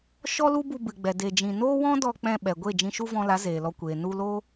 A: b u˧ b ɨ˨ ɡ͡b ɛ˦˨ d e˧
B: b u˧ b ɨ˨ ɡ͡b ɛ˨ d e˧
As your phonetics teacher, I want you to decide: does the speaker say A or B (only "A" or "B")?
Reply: B